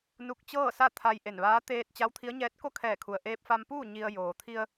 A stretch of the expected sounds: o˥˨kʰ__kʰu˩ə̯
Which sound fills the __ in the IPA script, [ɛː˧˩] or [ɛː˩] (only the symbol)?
ɛː˧˩